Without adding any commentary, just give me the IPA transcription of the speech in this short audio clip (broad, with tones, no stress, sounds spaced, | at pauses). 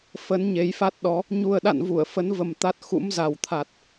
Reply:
f ə˨˦ n ɲ e˨˦ j f a˦˥ t̚ ɗ ɔ˨˦ | ɲ u˨˩ ə̯ ɗ a̰˧˨ n v u˧˩ ə̯ f ə˨˦ n v ə˨˩ m t̪ a˦˥ t̚ x ṵ˧˥ m z a˨˩ w t̪ʰ a˨˩ t̚